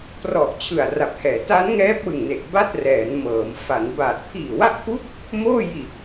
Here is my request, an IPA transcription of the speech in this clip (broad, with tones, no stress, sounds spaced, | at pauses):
p r ɔ˨˩ ʔ t͡ɕʰ ɯ˨˩ a̯ r a˨˩ p̚ h ɛː˩˦ t a˦˥ n ŋ ɛː˦˥ p̚ w ɯ˨˩ ŋ n e˨˩ ʔ b a˥˩ t̚ r ɛː˩˦ n m ɤː˩˦ m f a˩˦ n b aː˨˩ t̚ pʰ iː˨˩ w a˦˥ ʔ pʰ u˦˥ k̚ | m oː˥˩ j i˨˩ ʔ